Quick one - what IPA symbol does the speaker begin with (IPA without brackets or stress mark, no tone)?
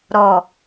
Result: ɾ